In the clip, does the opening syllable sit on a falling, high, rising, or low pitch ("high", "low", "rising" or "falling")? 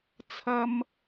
high